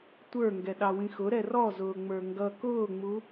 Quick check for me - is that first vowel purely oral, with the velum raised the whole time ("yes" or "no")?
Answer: yes